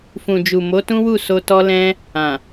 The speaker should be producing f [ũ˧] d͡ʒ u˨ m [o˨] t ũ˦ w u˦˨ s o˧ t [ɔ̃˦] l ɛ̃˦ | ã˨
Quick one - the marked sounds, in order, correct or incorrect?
incorrect: ũ˨, incorrect: o˨˦, incorrect: ɔ˦

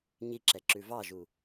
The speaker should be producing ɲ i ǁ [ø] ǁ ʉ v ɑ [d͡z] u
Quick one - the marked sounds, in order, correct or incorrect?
incorrect: ɛ, incorrect: ʒ

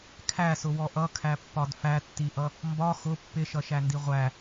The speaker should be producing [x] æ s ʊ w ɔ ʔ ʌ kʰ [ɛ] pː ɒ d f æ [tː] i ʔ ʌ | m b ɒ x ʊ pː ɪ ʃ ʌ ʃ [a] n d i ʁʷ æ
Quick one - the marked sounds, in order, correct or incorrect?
incorrect: kʰ, incorrect: æ, correct, incorrect: æ

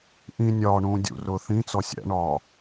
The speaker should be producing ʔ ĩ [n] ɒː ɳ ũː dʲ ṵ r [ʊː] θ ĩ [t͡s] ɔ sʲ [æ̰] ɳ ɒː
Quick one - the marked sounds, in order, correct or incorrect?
incorrect: nʲ, correct, correct, correct

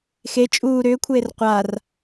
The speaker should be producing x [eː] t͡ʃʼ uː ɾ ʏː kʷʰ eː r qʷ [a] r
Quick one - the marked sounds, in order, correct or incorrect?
incorrect: e, correct

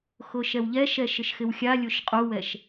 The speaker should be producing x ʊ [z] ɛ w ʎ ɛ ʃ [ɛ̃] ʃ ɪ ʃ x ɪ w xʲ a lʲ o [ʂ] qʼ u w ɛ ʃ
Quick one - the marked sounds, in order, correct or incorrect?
incorrect: ʃ, incorrect: ɛ, incorrect: ʃ

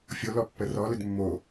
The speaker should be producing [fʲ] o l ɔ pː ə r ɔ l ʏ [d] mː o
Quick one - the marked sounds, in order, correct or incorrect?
correct, correct

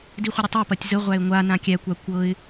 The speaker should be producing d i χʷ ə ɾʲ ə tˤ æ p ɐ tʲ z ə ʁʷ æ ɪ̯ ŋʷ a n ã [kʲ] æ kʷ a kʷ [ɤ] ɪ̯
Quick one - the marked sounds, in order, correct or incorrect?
correct, correct

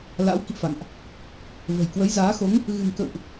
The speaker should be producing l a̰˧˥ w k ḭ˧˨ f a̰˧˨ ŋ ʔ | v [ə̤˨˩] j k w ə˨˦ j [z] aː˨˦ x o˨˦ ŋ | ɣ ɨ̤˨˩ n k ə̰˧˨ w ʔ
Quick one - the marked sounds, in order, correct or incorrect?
correct, correct

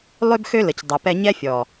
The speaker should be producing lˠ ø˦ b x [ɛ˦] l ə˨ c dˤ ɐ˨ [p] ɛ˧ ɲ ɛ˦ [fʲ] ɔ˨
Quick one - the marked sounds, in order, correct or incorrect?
incorrect: ø˦, correct, correct

